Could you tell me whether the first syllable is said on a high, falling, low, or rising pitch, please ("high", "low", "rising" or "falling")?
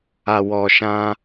low